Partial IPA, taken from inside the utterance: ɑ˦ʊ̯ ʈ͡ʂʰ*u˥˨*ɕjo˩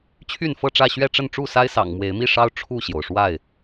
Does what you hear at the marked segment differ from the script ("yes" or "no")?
no